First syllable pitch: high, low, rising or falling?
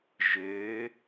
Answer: rising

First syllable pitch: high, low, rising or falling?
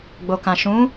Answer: low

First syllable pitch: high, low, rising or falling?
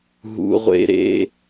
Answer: high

